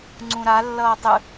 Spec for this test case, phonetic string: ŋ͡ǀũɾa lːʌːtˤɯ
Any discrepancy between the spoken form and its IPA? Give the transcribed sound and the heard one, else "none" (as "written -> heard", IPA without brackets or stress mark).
none